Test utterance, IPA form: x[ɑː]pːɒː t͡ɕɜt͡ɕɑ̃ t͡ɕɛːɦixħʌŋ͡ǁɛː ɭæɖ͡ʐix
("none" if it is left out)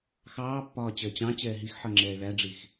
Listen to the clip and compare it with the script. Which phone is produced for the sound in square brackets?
ɑː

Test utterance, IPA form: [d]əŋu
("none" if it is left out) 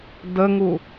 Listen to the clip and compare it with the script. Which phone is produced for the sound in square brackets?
d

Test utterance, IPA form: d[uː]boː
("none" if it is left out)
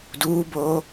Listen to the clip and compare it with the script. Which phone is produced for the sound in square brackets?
uː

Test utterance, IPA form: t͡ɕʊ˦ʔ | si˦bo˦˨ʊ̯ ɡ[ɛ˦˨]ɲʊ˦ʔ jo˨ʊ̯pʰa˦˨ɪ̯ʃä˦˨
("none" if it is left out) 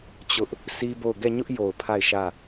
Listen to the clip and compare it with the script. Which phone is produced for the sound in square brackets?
ɛ˦˨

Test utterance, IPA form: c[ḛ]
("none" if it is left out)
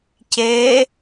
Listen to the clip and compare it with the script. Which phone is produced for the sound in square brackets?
e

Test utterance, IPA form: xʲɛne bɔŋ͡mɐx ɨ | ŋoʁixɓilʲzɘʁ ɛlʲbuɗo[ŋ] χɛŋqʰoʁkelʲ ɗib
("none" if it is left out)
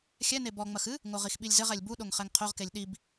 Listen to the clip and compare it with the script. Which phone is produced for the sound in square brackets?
ŋ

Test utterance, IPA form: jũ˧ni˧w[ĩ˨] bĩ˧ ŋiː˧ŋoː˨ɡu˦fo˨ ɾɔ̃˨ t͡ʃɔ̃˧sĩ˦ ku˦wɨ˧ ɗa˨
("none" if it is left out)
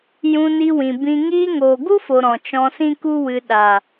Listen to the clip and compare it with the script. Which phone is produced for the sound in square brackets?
ĩ˨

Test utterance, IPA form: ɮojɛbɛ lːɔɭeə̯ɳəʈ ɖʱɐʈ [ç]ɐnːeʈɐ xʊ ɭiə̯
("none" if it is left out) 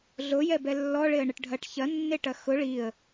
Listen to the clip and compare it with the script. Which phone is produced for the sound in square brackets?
ç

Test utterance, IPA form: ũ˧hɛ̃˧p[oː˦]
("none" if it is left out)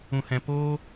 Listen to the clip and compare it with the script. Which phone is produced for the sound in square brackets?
oː˦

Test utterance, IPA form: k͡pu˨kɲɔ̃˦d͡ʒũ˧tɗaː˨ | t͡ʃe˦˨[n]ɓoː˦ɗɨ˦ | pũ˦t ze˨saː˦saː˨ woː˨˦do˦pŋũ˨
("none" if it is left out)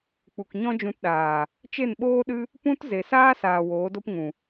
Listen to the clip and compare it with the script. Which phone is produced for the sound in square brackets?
n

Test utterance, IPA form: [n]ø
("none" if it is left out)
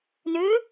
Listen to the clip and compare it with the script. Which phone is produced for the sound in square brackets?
n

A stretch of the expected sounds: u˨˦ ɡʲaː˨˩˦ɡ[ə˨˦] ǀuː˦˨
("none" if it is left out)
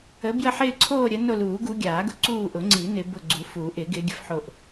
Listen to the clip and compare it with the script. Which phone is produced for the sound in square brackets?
ʊ˨˦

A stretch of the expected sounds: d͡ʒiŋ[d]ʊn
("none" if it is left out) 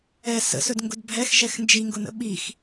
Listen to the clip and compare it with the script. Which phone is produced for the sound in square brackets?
ɡ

